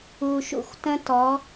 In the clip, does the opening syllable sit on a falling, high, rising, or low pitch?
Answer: low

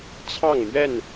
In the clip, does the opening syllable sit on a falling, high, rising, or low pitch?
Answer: falling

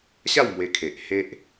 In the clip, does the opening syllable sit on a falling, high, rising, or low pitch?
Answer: falling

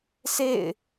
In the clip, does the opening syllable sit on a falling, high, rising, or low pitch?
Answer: falling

